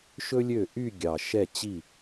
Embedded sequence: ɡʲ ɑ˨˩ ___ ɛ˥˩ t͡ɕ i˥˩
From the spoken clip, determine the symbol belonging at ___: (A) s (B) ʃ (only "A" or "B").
B